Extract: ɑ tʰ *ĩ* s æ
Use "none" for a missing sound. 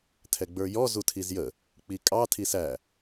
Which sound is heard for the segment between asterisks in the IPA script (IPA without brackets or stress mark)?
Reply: i